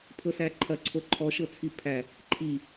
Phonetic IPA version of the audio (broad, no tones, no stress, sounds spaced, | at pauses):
pʰ ɤ s æ ǃʰ ɐ ǀʰ o ǃʰ ɔ ʃ ɤ t͡sʰ i pʰ æ | ǃʰ i